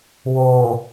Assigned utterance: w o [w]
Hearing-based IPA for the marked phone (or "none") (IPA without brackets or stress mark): none